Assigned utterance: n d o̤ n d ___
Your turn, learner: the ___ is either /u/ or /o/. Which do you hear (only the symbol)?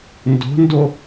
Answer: o